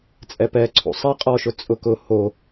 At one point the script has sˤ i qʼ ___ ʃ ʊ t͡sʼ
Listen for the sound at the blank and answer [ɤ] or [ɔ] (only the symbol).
ɔ